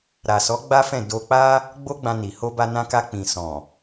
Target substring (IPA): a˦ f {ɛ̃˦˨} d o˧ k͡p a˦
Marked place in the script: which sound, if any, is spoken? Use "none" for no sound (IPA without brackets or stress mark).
ɛ̃˦˨